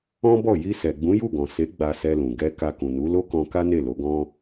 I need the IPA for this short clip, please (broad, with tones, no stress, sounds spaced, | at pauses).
ɔ̃˦ b ɔ˦˨ j i˧ s ɛ˨ ɡ͡b ũ˨˦ j u˦˨ ɡ ɔ̃˨ s e˨˦ ɡ͡b a˧ s ɛ˧ l ũ˨ ɡ ɛ˧ k a˧ k ũ˨ n u˨˦ l o˦ k ɔ̃˧ k a˦ n e˦˨ l o˨˦ ɡ ɔ̃˦